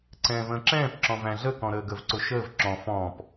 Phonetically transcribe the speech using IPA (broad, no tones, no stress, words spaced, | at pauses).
ǀɛ̃ːvə̃ːǁɛ̃ːp ǁɔ̃væ̃ɮə kɔ̃ɾəːɡəv ǀʊʃəːv ǁɔ̃ fɔ̃ːp